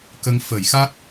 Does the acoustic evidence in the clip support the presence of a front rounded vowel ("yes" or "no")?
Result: no